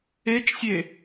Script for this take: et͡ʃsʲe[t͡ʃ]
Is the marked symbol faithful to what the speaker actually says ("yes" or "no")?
no